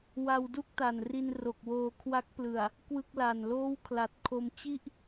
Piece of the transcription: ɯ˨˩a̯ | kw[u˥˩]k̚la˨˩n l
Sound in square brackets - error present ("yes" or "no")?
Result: yes